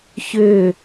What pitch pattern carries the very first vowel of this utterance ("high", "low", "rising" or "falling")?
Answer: falling